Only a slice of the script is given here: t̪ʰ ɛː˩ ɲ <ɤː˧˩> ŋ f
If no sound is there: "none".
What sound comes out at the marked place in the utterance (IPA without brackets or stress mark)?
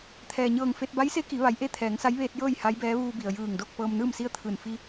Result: ɤː˧˩